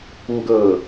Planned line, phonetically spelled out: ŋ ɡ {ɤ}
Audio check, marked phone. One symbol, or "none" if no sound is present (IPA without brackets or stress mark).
ɤ